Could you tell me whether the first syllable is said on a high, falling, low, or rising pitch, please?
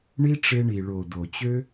high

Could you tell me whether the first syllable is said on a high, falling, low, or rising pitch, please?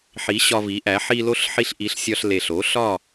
rising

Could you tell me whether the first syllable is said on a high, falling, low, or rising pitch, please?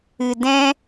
low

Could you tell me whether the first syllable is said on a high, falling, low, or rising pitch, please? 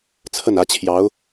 falling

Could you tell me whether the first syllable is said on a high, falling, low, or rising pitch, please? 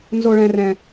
high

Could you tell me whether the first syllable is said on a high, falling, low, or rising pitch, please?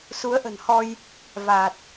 rising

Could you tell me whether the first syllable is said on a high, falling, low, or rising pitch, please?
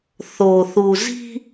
low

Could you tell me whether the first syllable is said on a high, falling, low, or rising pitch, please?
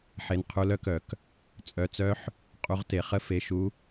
rising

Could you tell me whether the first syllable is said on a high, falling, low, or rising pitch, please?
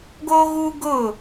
high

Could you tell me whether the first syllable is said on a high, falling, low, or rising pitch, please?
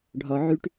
low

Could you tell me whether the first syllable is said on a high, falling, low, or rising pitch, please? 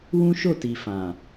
high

